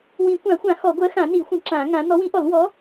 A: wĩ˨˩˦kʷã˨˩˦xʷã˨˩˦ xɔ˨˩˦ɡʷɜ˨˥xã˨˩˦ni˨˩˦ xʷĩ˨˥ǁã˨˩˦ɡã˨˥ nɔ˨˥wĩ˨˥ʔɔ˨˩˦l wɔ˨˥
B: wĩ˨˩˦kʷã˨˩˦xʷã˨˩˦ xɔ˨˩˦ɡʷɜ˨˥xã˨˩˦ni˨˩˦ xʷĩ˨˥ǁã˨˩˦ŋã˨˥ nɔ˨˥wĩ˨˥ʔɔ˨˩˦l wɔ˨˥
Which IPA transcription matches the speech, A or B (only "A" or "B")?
B